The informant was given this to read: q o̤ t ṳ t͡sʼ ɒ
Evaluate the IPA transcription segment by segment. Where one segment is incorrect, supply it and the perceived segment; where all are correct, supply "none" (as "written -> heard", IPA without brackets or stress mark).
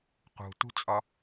o̤ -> ṳ